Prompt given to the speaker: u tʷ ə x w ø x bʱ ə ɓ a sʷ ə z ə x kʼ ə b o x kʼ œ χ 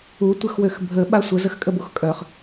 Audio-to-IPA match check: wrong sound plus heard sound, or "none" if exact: none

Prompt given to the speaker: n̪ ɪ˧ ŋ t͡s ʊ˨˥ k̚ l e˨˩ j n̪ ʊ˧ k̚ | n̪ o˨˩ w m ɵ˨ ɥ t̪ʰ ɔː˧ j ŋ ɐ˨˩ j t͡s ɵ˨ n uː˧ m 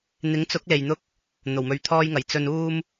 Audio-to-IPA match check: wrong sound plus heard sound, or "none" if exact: ɪ˧ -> ɪ˨˥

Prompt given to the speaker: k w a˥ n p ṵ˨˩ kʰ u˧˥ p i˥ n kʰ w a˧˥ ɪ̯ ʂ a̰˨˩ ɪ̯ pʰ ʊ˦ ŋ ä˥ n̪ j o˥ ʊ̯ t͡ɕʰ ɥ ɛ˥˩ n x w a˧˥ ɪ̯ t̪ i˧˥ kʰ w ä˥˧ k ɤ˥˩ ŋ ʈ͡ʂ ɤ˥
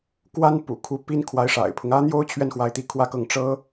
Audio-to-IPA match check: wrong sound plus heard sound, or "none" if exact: none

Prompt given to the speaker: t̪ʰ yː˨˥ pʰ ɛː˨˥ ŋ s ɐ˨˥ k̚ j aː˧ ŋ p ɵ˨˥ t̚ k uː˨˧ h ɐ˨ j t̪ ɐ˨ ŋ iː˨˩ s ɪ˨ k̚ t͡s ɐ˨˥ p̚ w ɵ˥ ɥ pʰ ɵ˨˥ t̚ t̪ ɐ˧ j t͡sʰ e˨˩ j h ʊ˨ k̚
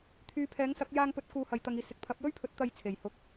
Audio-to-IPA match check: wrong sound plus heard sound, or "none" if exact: t͡s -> t̪ʰ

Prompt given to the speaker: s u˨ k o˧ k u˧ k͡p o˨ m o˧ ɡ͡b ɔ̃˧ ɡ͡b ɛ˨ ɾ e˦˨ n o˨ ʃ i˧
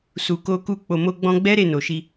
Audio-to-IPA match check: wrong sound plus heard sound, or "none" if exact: ɛ˨ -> ɛ˦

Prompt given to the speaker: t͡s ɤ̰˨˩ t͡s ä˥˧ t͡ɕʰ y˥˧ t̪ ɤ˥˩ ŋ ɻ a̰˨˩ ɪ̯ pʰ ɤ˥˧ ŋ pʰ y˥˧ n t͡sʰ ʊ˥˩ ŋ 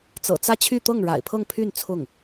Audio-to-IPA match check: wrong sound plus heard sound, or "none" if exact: none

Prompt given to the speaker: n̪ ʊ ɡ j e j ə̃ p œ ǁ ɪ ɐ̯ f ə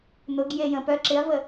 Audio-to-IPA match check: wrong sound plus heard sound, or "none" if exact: f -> v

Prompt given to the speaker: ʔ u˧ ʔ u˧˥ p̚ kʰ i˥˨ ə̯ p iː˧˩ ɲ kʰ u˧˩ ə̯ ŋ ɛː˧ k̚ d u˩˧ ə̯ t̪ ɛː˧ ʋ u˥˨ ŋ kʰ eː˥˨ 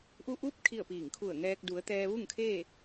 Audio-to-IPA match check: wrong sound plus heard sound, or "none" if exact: ɲ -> ŋ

